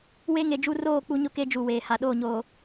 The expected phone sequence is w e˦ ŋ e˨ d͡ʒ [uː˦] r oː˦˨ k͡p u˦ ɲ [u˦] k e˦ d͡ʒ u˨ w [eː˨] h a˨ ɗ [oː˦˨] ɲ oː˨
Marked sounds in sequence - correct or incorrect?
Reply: incorrect, incorrect, correct, correct

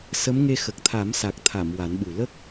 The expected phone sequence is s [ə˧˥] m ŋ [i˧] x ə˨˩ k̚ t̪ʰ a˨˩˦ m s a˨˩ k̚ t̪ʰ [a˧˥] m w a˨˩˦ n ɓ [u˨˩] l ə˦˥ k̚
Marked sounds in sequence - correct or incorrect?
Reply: correct, incorrect, incorrect, correct

